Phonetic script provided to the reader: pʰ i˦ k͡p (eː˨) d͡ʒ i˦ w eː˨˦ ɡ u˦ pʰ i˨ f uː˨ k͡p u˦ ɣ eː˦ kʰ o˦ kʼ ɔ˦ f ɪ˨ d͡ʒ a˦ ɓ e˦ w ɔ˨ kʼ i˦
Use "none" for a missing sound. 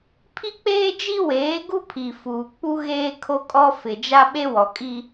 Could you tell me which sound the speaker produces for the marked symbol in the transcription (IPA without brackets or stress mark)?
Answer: eː˦